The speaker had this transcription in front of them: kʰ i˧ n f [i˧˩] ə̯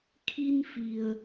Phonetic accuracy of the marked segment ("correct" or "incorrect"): incorrect